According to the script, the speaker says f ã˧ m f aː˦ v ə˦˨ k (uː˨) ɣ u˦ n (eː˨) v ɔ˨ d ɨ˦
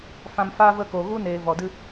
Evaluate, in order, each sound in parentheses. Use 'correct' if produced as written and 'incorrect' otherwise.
incorrect, correct

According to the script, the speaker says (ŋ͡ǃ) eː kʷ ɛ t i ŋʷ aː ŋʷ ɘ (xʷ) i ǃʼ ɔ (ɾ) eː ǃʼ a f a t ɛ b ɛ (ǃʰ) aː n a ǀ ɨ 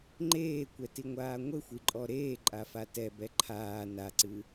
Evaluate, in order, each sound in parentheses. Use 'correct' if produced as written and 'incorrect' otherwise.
correct, correct, correct, correct

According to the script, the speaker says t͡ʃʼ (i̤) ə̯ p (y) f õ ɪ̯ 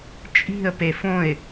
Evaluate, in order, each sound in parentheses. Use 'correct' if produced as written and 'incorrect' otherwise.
correct, incorrect

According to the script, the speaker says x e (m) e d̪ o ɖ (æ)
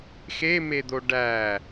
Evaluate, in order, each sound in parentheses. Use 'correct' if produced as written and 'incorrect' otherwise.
correct, correct

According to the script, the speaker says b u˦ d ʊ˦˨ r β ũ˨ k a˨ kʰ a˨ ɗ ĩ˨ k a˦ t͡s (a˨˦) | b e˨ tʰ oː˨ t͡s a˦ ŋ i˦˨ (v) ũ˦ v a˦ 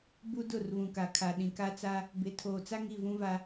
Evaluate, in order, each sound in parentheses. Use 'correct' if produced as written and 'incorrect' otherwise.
incorrect, correct

